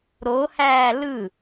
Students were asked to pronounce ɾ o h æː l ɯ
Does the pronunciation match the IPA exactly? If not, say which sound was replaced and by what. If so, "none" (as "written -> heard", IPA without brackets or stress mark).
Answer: none